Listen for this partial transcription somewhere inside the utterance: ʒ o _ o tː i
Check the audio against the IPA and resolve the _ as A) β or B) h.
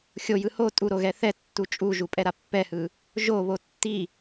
A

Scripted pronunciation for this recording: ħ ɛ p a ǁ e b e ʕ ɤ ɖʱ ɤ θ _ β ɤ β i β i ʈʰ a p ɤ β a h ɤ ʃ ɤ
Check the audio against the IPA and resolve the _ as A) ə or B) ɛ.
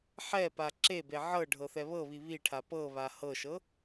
B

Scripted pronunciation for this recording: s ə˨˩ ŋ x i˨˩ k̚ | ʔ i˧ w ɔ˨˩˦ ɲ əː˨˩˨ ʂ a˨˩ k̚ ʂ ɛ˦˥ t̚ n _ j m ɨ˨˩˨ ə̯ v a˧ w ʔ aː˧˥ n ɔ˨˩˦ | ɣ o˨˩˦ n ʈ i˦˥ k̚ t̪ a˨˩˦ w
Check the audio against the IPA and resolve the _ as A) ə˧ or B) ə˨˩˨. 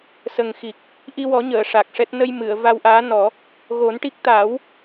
A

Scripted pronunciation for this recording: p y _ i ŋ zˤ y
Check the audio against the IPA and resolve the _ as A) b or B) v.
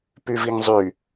B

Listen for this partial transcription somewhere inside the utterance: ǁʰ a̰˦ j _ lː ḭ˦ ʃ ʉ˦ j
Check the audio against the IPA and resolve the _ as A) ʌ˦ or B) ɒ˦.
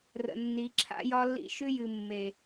B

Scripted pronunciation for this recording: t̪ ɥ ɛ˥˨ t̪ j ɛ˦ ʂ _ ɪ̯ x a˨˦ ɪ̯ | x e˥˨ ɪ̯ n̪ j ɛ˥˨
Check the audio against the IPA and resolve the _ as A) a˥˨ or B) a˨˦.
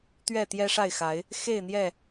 A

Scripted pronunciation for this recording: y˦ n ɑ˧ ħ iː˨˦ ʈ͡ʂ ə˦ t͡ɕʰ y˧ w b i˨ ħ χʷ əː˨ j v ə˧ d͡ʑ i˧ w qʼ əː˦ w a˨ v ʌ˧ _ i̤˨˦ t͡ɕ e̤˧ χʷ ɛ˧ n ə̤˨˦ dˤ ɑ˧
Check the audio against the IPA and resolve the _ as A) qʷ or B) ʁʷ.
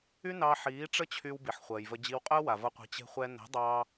A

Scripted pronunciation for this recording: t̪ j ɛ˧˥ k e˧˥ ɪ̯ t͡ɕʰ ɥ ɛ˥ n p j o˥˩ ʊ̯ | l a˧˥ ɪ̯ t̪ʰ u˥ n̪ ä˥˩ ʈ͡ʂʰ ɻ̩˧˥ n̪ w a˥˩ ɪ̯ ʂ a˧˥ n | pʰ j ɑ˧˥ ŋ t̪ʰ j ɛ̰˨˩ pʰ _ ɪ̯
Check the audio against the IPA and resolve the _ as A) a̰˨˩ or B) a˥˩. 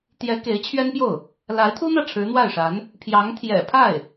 B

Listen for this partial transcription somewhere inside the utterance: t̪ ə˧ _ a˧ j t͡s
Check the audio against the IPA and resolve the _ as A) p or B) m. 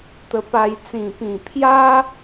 A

